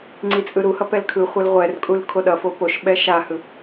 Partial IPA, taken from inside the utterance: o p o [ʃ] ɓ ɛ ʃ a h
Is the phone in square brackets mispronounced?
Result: no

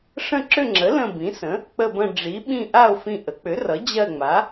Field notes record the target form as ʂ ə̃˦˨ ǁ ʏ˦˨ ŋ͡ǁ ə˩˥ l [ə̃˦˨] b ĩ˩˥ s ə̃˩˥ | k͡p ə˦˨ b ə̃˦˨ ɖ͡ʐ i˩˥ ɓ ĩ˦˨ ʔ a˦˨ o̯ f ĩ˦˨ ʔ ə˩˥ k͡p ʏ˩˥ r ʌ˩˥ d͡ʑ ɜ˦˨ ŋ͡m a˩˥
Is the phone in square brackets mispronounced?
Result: no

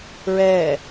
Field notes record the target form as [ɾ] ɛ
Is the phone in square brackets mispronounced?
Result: yes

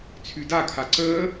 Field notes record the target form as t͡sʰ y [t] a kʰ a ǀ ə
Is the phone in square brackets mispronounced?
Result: yes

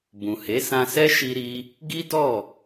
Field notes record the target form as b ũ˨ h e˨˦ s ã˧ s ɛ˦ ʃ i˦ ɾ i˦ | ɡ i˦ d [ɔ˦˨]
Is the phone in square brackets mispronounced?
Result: no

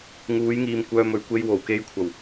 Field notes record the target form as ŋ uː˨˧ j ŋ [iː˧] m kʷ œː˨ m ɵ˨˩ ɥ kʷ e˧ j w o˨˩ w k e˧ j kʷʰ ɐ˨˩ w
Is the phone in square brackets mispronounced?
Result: yes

